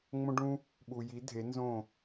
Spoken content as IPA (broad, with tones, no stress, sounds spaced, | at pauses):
ŋ͡m õ˦ ɖ ũ˦ | ɓ u˨ j i˨˦ dʱ e˨˦ n z õ˦˨